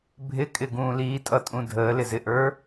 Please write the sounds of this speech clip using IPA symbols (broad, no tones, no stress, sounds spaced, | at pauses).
bʱ ɪ kʼ ɪ ɡ ũː l iː tʼ ʌ tʼ ũ dʱ əː l ɪ z ɪ ʔ ə˞